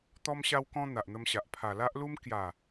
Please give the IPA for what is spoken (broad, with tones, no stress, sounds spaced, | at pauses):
t̪ ɔ˦ m ɕ a˦ w k ɔ̃˦ n̪ a˨ ʔ n̪ ə˧ m ɕ a˨ ʔ pʰ a˨˩ l a˦ ʔ l u˦ m k j a˨˩